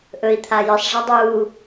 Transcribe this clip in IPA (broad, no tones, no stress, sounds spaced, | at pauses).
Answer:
ʔ ɵ i̯ t̪ʰ a j ɨ sˤ ʐ a dˤ uː